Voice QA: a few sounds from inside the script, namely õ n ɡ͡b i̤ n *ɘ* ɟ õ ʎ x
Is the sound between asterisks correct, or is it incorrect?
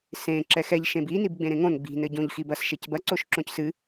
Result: correct